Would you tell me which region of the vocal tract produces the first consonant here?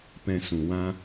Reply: lips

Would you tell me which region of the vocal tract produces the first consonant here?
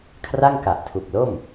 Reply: velum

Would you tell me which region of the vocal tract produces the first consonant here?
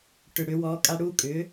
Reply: retroflex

